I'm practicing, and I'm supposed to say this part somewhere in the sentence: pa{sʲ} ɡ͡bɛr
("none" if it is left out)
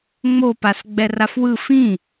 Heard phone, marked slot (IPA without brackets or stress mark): s